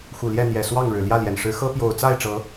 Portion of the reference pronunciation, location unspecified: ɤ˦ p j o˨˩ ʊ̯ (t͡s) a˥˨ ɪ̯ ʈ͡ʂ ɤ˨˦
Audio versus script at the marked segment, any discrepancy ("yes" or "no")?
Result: no